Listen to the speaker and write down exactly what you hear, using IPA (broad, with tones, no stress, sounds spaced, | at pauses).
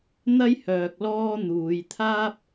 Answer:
n̪ ɐ˥ j h œː˨ k̚ l ɔː˥ n̪ uː˨˧ j t̪ʰ aː˥ p̚